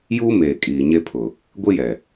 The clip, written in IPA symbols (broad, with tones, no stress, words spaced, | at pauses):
juː˦ meː˨ kʼiː˨ɲe˦pʰʊ˨ | ɡʷi˦jɛ˨